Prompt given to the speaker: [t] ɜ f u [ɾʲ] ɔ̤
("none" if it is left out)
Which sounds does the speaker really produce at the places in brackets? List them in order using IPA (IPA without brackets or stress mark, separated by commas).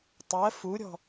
tˤ, ɾʲ